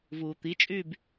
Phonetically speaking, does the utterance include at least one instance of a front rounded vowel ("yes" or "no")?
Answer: yes